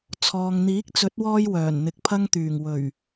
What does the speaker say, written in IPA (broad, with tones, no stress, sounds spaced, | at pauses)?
t͡sʰ ɔː˨ ŋ n̪ iː˨˥ k̚ t͡s ɵ˨˥ t̚ w ɔː˧ j w œː˨˩ n n̪ ɪ˨ k̚ pʰ ɐ˧ ŋ t̪ yː˨˩ ŋ w ɵ˨˩ ɥ